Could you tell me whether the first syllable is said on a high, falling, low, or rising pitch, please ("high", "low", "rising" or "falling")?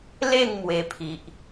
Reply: falling